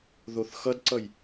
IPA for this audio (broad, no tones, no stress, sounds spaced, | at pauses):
ð o θ x ʌ d ǀ ʌ j